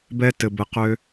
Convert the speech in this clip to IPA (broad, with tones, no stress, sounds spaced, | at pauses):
b ɛ˧ t ɘ˨ b ɘ˧ q ø˧